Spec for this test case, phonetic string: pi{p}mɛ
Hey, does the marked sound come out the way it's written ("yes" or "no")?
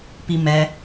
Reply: no